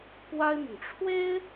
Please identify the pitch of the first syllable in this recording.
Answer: high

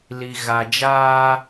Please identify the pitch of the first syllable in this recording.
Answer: low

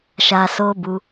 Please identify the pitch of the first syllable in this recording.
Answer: low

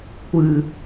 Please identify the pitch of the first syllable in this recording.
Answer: low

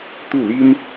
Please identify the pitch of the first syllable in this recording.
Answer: falling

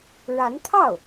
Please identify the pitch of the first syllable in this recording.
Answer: rising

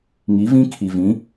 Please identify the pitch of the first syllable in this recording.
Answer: rising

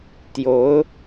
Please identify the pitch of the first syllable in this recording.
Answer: rising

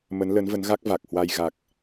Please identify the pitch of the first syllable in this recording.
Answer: rising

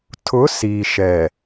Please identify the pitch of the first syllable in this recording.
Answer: rising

